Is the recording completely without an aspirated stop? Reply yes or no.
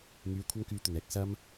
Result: no